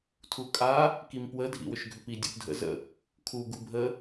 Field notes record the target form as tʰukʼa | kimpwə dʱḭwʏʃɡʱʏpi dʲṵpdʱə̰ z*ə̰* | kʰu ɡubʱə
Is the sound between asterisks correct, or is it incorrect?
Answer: correct